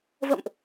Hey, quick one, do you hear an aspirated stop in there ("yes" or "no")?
no